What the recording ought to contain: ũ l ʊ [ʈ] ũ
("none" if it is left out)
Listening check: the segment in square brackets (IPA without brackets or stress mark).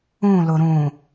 ɾ